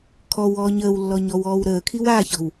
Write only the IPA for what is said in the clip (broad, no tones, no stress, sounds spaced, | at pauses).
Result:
kʰ ɔ w ɔː ɲ əː w lː ɔ ɲ ɔ w ɔː w ɾ əː kʰ i w a ç ɔ̤ w